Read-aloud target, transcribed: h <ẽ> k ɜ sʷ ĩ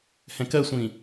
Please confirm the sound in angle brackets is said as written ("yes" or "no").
no